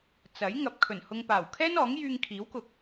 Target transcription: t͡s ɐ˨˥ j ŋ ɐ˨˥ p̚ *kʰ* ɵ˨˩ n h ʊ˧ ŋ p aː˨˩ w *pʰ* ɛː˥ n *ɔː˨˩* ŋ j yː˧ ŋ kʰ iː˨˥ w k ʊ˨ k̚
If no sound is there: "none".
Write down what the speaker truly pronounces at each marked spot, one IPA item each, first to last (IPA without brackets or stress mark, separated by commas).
kʰ, kʰ, ɔː˨˥